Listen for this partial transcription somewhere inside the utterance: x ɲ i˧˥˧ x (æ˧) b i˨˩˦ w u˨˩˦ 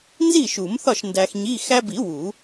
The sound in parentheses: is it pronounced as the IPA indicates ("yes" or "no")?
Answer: yes